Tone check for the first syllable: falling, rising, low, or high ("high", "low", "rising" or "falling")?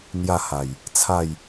falling